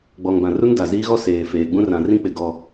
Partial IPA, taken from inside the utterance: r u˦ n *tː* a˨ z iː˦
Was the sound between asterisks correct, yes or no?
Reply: no